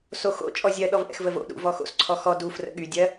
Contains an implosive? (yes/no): yes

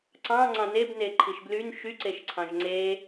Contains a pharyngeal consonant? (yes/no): no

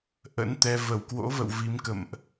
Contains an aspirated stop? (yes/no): no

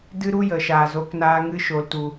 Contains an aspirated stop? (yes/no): no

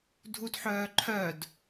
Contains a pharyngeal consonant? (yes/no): yes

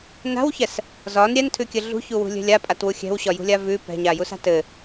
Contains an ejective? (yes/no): yes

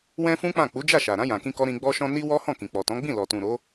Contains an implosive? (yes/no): no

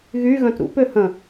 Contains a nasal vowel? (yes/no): yes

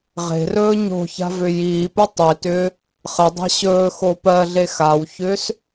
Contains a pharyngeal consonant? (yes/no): no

